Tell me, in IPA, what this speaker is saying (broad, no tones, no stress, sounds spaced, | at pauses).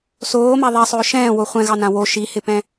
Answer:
s oː m a ðˤ ɛ sˤ ɵː ʃ ɛ̃ː w o χʷ ɛ̃ ɣ ɑ n ã w o ʃ i h ɪ p ɛ̃